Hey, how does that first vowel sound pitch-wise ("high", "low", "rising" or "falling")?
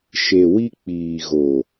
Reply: low